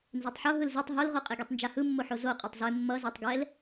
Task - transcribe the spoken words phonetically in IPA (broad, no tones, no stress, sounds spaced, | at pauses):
n z e tˤ ħ o ɦ ɯ l z e tˤ ɦ o l ʁ o qʼ e ɡ i tˤ n d͡ʒ a h ɯ mː o ħ o z o qʼ a tˤ z e mː ʌ z a tˤ ɡ ɛ l